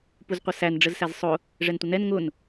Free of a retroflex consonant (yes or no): no